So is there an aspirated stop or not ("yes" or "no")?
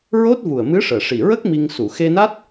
no